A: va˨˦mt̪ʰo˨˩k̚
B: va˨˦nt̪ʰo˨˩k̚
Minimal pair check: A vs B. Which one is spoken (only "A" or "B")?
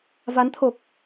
B